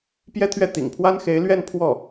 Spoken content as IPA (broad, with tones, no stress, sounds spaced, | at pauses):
p j ɛ˥ t̪ʰ ɥ ɛ˥˩ t̪ ḭ˨˩ ŋ pʰ w a˥ n x e˧˥ ɪ̯ l ɥ ɛ˥˧ n pʰ w ɔ˥˩